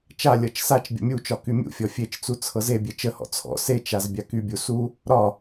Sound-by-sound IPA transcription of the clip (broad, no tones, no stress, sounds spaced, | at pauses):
t͡ʃ a lʲ ɤ t͡ʃ s a t͡ʃ bʲ ə̰ mʲ u t͡ʃ ɒ k y mʲ ṵ fʲ ɔ fʲ e t͡ʃ t͡s u t͡sʰ ɤ z e bʲ e t͡ʃ ə h ɔ̰ t͡sʰ ɔ̰ s e t͡ʃ a z bʲ a k y bʲ u s u | ɾ ɒ